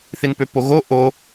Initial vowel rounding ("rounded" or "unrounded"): unrounded